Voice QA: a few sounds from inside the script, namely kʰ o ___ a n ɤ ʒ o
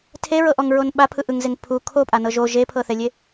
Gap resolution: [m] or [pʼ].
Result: pʼ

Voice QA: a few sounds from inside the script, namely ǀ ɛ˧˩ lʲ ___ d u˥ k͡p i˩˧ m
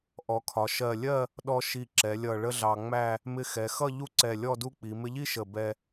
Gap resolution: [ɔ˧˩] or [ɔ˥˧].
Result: ɔ˥˧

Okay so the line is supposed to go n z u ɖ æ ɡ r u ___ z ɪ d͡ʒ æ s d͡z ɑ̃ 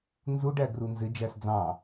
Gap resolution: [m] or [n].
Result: n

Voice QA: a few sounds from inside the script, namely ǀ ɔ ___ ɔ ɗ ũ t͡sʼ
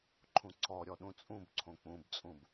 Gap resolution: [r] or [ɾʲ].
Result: ɾʲ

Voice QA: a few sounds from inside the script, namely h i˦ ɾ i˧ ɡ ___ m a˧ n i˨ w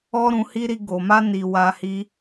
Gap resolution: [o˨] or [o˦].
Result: o˨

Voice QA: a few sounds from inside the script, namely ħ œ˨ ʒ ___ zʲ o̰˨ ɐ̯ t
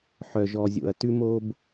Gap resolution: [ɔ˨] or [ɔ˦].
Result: ɔ˨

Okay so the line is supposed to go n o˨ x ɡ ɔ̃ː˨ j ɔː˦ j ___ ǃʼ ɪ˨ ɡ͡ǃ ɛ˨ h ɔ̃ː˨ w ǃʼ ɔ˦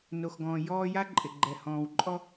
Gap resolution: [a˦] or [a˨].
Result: a˦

